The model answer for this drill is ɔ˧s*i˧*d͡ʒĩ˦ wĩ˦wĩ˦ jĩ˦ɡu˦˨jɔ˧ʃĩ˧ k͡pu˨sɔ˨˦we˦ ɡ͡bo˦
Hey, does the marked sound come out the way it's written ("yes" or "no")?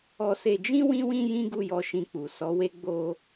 no